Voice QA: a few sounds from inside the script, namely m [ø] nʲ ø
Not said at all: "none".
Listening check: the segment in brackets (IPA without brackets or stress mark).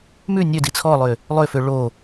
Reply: ʉ